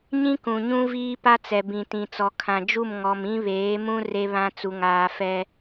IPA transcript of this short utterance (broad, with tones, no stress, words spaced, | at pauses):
ɲĩ˦kũ˨ɲũ˦ viː˦pa˦t͡sɛ˨ bĩ˨tĩ˨t͡sɔ˨ kʰã˨d͡ʒu˦˨m ŋɔ˨m ĩ˦βeː˨˦mũ˦ re˦βã˦ t͡su˨ŋaː˨ fɛ˦